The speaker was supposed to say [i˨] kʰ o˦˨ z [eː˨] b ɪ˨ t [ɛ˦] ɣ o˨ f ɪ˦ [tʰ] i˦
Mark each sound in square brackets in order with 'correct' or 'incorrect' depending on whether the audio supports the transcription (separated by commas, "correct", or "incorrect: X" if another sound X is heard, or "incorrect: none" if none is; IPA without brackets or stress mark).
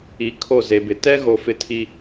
correct, incorrect: e˨, correct, correct